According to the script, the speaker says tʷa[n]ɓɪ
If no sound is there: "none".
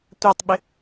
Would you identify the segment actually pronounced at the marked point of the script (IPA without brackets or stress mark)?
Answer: tˤ